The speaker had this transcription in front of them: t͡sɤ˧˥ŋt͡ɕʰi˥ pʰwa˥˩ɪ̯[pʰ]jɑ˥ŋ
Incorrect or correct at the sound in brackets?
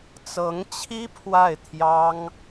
incorrect: t̪ʰ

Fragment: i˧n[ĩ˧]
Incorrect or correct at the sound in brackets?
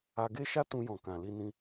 correct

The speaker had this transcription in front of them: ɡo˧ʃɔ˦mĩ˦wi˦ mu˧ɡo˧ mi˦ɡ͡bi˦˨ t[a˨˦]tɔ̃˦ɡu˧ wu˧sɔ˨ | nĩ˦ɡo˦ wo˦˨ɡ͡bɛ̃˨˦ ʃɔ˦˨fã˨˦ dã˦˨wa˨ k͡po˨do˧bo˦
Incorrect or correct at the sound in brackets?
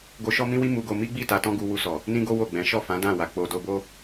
incorrect: a˧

